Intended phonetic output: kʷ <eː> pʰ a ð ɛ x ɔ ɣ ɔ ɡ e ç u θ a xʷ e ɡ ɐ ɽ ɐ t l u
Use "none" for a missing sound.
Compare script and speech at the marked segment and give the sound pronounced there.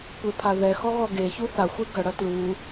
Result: e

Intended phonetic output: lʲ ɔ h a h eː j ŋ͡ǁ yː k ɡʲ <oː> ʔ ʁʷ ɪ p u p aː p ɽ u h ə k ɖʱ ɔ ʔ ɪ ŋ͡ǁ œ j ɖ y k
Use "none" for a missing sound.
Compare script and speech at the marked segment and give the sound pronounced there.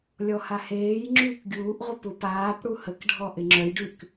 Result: uː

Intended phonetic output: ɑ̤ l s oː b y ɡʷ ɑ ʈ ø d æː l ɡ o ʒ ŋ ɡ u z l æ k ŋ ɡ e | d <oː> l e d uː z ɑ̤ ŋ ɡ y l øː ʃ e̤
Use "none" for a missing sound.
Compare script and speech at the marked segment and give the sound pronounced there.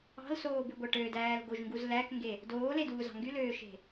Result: oː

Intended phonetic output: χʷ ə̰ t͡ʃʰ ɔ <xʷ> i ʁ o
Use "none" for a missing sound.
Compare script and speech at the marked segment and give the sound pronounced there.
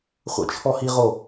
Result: h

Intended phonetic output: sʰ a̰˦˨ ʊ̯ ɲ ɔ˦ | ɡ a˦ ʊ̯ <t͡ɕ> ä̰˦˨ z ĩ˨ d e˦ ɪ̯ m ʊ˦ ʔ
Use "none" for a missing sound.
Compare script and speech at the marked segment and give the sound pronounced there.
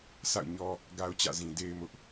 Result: t͡ɕ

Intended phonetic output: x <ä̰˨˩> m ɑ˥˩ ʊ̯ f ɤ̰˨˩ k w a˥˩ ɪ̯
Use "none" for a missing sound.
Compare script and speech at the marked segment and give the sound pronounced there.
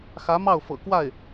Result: ä˧˥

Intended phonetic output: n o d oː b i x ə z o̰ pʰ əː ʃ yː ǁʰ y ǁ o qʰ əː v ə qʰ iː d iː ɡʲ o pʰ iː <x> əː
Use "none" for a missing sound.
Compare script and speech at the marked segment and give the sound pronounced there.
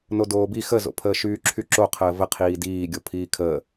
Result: kʰ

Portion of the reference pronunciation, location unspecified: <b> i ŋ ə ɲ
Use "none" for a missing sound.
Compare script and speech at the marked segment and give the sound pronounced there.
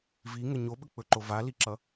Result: v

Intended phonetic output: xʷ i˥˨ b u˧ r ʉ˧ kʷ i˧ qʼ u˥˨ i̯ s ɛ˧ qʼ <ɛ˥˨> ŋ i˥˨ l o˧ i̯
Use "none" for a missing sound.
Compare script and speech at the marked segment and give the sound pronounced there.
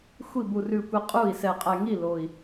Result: ɛ˧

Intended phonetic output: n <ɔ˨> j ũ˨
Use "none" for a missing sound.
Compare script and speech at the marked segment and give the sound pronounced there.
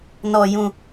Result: ɔ˨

